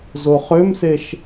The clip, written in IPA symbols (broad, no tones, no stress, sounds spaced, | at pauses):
z o χ ø m s e ʃ